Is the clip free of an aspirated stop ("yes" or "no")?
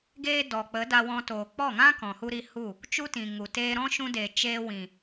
yes